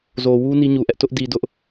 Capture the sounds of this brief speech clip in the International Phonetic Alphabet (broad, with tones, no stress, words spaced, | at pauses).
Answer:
zo˨wu˦ ni˦ɲu˨ʔɛ˦ʔ tʊ˦ʔdi˨dʊ˦ʔ